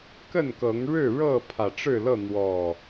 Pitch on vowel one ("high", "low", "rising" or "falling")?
falling